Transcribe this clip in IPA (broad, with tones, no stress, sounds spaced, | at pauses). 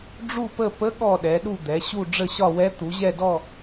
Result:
ɖ͡ʐ u˦˨ p ə˦˨ p ə˧˥ ɠ ɔ˦˨ ɗ ɛ˩˧ ɗ u˦˨ d̪ ɛ˩˧ ɕ u˦˨ ɖ͡ʐ ə˦˨ ɕ ɒ˦˨ w ɛ˧˥ t̪ u˩˧ ʑ ɛ˦˨ d ɔ˦˨